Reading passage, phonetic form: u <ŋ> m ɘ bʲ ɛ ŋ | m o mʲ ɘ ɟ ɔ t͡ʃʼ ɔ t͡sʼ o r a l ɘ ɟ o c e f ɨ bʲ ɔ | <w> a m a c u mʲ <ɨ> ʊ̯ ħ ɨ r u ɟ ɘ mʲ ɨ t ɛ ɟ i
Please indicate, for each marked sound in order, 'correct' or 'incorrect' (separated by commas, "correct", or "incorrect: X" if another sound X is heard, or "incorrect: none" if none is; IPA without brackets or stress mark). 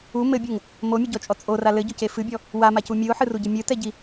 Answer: incorrect: none, correct, correct